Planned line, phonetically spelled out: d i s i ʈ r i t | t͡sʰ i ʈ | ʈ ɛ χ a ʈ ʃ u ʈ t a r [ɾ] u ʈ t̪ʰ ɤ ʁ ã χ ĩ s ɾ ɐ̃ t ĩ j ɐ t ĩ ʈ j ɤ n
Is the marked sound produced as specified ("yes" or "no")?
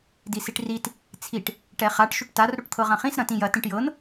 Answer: yes